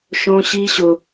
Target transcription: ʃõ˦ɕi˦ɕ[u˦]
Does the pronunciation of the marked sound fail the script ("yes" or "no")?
yes